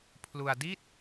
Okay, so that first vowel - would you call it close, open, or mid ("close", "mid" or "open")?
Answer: close